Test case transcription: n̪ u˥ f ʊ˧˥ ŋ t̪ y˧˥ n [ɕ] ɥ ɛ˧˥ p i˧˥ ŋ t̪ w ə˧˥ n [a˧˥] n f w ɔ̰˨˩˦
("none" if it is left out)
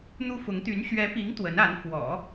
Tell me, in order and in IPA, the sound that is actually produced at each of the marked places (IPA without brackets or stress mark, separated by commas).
ɕ, a˧˥